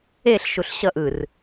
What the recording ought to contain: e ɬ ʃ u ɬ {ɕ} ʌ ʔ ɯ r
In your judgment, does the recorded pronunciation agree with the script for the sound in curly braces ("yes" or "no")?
yes